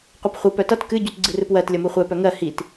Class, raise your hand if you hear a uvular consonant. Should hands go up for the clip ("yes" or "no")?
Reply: yes